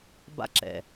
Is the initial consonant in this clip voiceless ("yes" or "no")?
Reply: no